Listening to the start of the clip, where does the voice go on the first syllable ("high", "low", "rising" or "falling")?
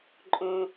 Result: low